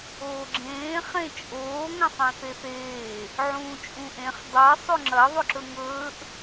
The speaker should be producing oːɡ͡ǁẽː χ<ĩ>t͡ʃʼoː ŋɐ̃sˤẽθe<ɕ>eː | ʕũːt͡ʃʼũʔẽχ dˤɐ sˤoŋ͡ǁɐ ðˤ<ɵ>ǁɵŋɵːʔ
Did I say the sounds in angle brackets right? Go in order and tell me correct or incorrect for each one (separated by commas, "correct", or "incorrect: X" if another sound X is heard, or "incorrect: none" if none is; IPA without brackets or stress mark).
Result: incorrect: ẽ, incorrect: θ, correct